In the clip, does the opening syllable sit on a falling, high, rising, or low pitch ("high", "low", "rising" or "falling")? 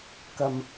low